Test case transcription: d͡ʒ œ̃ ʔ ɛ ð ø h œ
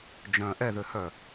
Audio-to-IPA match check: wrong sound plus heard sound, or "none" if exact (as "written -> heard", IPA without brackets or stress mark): none